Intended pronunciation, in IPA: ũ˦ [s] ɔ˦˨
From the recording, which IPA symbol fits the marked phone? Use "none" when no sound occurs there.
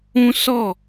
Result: s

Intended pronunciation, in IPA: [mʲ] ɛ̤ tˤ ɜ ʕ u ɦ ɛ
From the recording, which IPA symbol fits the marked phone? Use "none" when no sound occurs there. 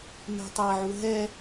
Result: m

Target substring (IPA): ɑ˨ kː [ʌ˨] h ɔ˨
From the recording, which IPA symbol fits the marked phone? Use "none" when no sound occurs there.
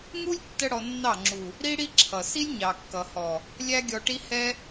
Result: ʌ˨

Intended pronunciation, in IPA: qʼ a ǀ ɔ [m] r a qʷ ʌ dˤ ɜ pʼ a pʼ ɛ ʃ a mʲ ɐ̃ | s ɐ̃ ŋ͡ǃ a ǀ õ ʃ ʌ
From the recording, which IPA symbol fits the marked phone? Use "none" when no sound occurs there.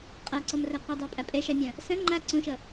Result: m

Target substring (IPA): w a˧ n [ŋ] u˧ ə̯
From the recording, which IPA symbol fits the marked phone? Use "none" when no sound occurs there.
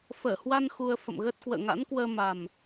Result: x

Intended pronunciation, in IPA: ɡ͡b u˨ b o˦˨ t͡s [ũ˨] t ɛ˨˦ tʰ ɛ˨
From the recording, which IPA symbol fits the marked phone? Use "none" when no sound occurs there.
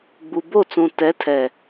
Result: ũ˨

